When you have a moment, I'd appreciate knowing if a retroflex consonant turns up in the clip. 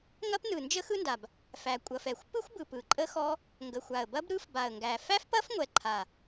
no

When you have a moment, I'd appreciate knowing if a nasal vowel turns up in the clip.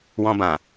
yes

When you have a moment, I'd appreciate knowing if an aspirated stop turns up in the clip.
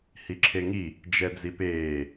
yes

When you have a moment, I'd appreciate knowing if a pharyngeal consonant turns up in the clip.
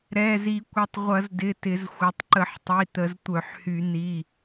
yes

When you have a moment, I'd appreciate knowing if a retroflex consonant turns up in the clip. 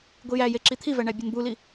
yes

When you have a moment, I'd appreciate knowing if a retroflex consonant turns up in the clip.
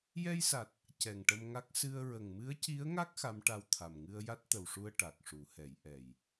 yes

